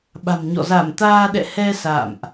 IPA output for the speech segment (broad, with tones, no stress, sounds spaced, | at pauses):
ɓ a̤˨˩ m ɲ ɔ̰˧˨ z a˧˩ m t̪ aː˧ ɗ ɛ̰˧˨ h ɛ˧ s a̰ː˧˨ m ʔ